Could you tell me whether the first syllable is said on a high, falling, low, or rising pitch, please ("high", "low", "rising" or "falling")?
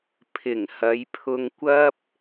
low